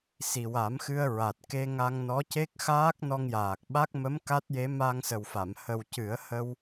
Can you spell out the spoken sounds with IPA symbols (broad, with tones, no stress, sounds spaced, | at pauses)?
s i˨˩ w a˨˩˦ m x ɨ˧ ə̯ ɹ a˨˩ t̚ k e˧ ŋ a˧ ŋ n ɔ˧˥ c e˦˥ k̚ x aː˦˥ k̚ n ɔ˧ ŋ j aː˨˩ k̚ ɓ a˦˥ k̚ m ə˧˥ m k a˦˥ t̚ j e˧˥ m a˧ ŋ s ə˨˩ w f a˨˩˨ m h ə˨˩ w c ɨ˨˩˦ ə̯ h ə˧ w